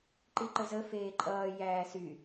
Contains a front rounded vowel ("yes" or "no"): yes